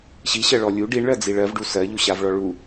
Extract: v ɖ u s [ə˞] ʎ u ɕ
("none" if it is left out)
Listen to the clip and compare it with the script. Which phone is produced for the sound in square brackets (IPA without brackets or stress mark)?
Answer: ɜ